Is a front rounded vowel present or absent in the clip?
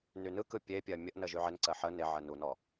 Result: present